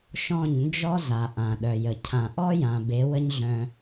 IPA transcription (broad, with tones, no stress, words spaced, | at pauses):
ʃɔ̃˦˨ɲnd͡ʒɔ˦za˨ ʔã˨ɗœ˨jə˨ cʰã˨ʔɔ˦jã˨ be˨˦wə˦ɲɮœ̃˧